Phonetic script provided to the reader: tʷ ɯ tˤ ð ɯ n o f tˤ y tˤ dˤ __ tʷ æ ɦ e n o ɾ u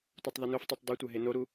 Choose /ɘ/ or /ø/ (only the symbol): ø